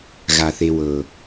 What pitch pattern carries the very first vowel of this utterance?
low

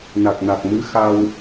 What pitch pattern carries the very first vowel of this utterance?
low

